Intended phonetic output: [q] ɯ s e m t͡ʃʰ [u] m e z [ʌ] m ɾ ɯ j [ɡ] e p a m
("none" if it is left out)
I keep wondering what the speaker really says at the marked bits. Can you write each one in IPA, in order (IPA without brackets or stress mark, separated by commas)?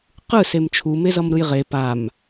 q, u, ʌ, ʁ